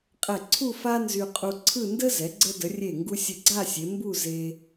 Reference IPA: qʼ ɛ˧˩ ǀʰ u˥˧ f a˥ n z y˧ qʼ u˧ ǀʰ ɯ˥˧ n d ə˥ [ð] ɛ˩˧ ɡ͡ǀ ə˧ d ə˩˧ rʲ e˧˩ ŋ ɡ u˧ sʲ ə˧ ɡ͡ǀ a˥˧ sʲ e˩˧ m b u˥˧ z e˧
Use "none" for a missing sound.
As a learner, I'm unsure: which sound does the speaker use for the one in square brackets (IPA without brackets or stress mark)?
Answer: z